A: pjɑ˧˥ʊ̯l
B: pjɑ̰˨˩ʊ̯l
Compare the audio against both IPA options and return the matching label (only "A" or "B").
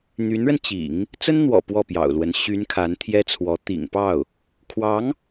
B